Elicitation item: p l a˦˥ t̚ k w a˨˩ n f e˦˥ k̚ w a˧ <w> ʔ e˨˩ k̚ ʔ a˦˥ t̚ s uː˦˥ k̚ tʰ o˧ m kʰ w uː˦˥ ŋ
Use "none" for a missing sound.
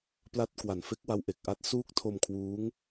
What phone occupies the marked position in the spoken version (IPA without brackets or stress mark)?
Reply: w